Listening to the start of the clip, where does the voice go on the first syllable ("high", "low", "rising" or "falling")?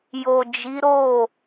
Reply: low